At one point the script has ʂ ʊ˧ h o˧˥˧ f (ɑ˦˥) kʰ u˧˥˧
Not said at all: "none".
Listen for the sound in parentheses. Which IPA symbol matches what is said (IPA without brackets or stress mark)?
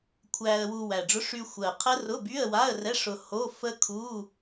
ə˦˥